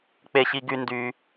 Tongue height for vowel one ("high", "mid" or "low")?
mid